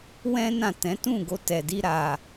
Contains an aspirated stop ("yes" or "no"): no